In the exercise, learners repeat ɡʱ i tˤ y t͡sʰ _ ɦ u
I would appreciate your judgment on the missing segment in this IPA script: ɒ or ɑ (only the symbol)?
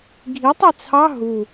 ɑ